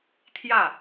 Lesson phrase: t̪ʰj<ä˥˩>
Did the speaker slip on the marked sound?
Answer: no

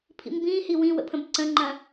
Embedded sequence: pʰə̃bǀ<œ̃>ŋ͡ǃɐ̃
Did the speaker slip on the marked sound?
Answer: yes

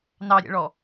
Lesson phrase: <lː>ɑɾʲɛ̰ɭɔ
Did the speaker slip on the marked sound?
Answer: yes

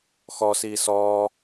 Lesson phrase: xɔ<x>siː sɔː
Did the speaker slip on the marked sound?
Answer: yes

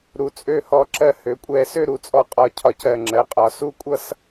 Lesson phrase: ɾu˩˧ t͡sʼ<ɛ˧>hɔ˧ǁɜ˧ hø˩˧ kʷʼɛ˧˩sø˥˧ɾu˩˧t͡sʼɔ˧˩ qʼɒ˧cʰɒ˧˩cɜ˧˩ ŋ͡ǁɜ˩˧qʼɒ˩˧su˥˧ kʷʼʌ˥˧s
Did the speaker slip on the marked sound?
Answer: yes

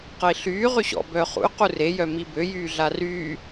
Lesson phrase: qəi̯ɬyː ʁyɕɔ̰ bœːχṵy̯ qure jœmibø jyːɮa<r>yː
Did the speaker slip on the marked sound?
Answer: no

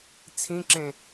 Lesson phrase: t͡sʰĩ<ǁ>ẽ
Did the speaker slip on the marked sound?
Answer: no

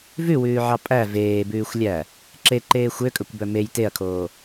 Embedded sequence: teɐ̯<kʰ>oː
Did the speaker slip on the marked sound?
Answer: no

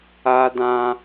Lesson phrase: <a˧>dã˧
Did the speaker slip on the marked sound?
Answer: no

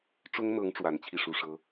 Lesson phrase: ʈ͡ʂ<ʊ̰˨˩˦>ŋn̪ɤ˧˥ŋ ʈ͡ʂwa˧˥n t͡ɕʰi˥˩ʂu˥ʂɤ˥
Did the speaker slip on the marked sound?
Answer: yes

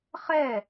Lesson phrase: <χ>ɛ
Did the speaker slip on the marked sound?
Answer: no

